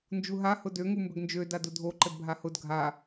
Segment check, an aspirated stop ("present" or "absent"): absent